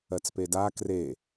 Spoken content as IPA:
ɜ t͡s p e d a k r e

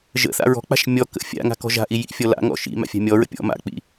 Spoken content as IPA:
ʒ ə̰ θ a̰ ɹ ɔ̤ k͡p a̤ ʃ mʲ ɔ k ə̰ fʲ a̰ ŋ a̤ k ɔ̤ ʒ a̤ ʔ i j ḭ fʲ ɔ l a̰ ŋ ɔ̰ ʃ ḭ m a̰ fʲ a̤ mʲ ɔ ɹ ə̰ pʲ ɔ̰ m a̰ k͡p ḭ

